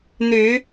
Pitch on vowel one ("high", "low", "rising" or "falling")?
rising